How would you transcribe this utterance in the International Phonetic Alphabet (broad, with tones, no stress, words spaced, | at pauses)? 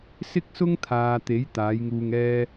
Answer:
sɪ˥k̚sʊ˥ŋt̪ʰaː˨t̪e˨˥j t̪aː˨˥jŋuː˧ŋɛː˥